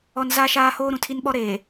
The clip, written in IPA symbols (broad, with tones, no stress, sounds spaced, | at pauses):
ɔ˦ n z a˦ ʃ aː˦ h oː˦ ɾ ũ˨ tʰ i˦ n ɓ ɔ˦ ɾ e˨